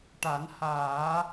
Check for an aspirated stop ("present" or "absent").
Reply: absent